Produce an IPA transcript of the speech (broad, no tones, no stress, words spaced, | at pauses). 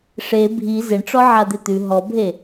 ʂe bʱi zɪɳʈ͡ʂɔ ʕad̪et̪ʉ ɦɔbʱe